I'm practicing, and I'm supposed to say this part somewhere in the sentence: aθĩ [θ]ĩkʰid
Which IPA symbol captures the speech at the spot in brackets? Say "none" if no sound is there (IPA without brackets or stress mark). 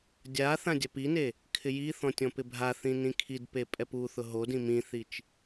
n